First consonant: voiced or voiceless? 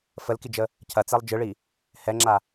voiceless